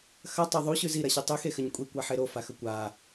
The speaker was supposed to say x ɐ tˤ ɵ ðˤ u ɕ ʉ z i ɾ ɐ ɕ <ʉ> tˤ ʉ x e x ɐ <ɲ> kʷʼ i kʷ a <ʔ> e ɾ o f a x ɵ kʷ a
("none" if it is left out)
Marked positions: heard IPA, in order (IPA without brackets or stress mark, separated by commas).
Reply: u, ɲ, ħ